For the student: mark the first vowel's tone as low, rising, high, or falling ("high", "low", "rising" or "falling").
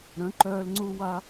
rising